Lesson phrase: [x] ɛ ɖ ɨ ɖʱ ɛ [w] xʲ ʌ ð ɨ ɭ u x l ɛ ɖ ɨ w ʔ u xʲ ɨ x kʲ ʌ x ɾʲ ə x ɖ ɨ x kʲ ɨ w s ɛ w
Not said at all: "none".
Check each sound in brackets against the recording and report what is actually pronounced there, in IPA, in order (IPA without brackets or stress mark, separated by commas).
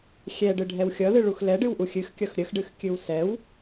xʲ, w